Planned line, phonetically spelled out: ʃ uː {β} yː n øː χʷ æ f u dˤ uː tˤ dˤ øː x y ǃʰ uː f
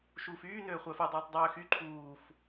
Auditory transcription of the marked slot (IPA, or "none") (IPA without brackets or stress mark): f